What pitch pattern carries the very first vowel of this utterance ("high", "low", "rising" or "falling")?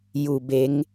low